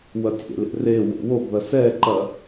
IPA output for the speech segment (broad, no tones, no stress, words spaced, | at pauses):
wɐtʲḛlḛ re wo̰woɡðɐ sɛǃɐ